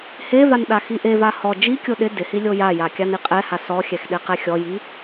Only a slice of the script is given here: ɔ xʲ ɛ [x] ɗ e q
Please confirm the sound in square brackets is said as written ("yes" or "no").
yes